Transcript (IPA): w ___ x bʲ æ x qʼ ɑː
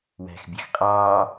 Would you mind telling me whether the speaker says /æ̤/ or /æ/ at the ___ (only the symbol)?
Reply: æ̤